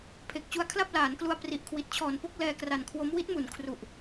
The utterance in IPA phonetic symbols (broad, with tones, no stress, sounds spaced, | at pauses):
pʰ e˨˩ k̚ t͡ɕ u˧ a̯ kʰ l a˥˩ p̚ l aː˩˦ n k l u˧ a̯ p r i˨˩ ʔ kʰ w i˨˩ t̚ t͡ɕʰ ɔː˨˩ n p o˥˩ k̚ l ɛː˧ k r a˨˩ n kʰ w o˦˥ m w i˦˥ t̚ m u˨˩ n kʰ r u˨˩ ʔ